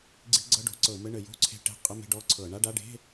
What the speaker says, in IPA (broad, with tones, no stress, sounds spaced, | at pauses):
ɡ͡ǀ i̤˧˥˧ ɡ͡ǀ ɤ˧˥˧ ɖ o̤˧˩˧ ǀ ɤ˧˩˧ m ɘ˧˥˧ ɳ ɘ˧˩˧ j o̤˧˥˧ ǀʰ e̤˧˥˧ ʈ e̤˧˥˧ qʼ ə˧˥˧ m e̤˧˥˧ ɖ ɔ˧˥˧ ǀʰ ɤ˧˩˧ ɳ a˧˥˧ ɖ a˧˥˧ ɖ e̤˧˥˧